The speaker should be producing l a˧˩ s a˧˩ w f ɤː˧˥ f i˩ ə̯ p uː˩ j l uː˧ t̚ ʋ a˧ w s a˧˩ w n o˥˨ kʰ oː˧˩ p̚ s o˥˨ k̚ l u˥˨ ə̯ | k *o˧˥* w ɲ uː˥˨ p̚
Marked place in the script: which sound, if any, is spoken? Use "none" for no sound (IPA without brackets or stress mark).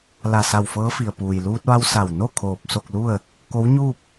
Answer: o˧˥